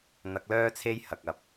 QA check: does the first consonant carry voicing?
yes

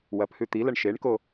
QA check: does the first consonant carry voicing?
yes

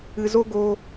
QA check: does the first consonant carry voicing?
yes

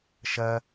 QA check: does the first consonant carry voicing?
no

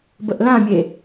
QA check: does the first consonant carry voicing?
yes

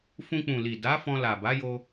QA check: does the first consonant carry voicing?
no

